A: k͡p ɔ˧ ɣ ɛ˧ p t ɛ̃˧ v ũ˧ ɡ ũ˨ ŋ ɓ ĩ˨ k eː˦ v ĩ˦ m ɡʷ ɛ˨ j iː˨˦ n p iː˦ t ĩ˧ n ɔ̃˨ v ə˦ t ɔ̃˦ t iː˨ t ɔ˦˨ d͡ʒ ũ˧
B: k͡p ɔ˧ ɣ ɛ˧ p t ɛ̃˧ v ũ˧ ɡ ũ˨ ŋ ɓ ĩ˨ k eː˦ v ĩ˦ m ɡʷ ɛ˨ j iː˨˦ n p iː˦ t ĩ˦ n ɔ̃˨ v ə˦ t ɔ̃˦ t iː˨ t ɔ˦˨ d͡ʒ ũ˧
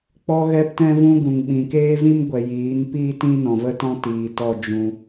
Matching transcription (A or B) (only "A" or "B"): B